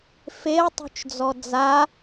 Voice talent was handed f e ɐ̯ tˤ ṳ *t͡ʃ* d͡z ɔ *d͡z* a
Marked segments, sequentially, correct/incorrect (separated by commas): correct, correct